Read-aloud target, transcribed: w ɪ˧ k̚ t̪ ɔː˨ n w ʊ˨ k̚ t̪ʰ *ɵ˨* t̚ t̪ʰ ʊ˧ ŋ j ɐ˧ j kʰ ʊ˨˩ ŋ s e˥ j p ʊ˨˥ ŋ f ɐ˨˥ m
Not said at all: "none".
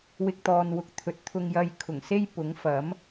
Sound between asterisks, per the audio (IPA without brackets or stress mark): ɵ˨